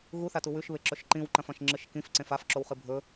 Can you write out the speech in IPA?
ɣuθatu wʉʃβeǁɵʃ ǃĩwǃɐ̃fɐ̃ʃ ŋ͡ǁɨʃkĩfǀẽf afǁowχɨ bʱɵ

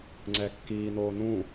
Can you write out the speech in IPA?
ŋ͡ǀɛkːiː noːnũ

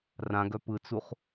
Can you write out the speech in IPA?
rãɡœ pɯt͡suχ

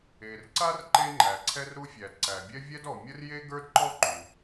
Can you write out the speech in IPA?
e˩rǀa˥r ǃe˥ŋ͡ǃæ˩ǀʰɛ˥rɾu˥ fʲæ˩dǀæ˩bʲɛ˥ vʲɛ˥dɔ˩ mʲə˥rje˥ ɡə˞˥dǃɔ˥ ǃu˩

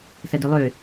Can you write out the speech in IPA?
sɐdølˠø

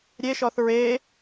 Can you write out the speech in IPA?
ɾʲeʃɔθ ɹe

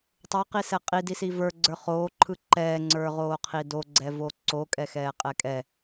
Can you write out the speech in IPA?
tˤoqisɛ qʼidisi və˞ɡ͡ǀə˞ χoːǃʰɯ ǃɛːŋ͡ǀə˞ʁoːqʰi doɡ͡ǀɛvo ǀokʼɛxɛːqʼɛ kʼɛ

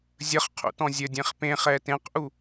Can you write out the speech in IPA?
zʲəχqʰṵtɔ̃ zʲədʲẽχ pẽχɛ tẽqʔu

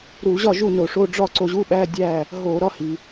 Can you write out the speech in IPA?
ɾu˧˩˧ʑɒ˥˨ ʒu˥˨no˧˩˧ʂo˧˥˧ ɖ͡ʐɒ˥˨ ǀo˧ʑu˧˥˧ɓæ˧˥˧ dʲæ˥˨ | ɦo˧˩˧ ɾɒ˧˥˧hi˩

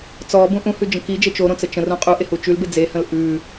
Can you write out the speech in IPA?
t͡sɔbũ ʔũhʉd͡ʒə̃ kid͡ʒe t͡ʃoɾõt͡sə t͡ʃə̃rũ qʼuʔehu t͡ʃʉlbe d͡zehə̃l ʔʉ

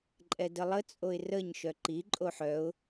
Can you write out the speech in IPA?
ǃʼɛdəlˠə t͡sʼoɪ̯rəɲ ʃœǃi ǃʼoħœʊ̯

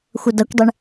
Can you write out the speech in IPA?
xʷʌdʌkʷdˤeɳ

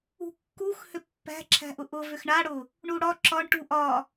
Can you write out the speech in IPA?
ṳkːux hʏpːæ̤ ǁʰæ̤ʔʊʔʊ vʏxɳaɽʊ | ɳuɽɒ ǁɒɳ ʈuʔɒ

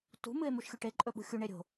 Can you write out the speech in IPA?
tṳ mɨe̯muʃxʲuʈe ǃʼɵɓṳxʲu ɳeɾʲo̤

